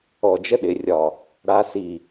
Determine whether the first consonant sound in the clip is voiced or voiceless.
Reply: voiced